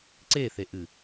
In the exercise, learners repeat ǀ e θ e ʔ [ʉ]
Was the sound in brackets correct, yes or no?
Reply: no